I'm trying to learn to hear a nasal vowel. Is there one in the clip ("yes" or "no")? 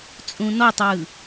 yes